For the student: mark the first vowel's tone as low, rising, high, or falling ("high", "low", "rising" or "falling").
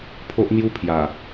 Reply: high